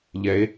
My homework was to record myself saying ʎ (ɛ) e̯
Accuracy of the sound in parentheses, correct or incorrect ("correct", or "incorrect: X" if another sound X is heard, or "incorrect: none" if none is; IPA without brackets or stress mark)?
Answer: correct